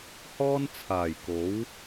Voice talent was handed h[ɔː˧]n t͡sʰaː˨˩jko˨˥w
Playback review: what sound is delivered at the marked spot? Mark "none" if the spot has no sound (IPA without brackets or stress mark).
ɔː˥